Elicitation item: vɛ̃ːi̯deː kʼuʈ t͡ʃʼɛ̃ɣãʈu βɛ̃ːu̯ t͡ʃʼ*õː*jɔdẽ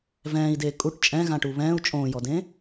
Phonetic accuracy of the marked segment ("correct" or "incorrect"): correct